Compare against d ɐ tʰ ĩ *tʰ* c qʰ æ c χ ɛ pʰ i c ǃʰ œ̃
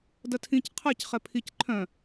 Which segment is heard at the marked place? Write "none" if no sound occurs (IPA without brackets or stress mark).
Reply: none